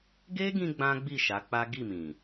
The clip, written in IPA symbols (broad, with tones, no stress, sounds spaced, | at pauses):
ɡ e˦ ɡ ĩ˧ ɡ͡b ã˦ ɡ͡b i˦˨ ʃ a˨˦ k͡p a˦ ɡ i˦˨ m ĩ˨